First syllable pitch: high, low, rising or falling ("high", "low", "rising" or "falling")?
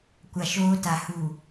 low